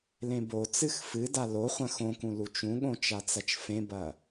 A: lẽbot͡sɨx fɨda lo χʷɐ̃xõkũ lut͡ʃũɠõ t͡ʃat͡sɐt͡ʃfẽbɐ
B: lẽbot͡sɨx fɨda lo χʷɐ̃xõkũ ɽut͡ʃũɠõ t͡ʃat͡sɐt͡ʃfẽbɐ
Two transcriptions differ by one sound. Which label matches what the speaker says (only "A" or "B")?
A